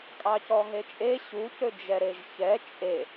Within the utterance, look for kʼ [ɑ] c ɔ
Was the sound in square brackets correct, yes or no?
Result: yes